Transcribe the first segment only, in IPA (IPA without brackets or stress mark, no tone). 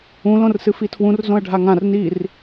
ũ